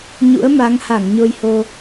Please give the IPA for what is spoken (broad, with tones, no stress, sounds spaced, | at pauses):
ɲ ṵ˧˥ ə̯ m a˨˦ ŋ h a˧˩ ŋ ɲ o˧ j h o˧